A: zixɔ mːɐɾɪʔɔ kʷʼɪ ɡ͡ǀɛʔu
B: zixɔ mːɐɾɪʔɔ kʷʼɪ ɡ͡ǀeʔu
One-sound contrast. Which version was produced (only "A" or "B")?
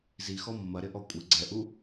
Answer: A